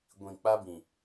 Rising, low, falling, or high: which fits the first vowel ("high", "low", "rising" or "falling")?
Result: low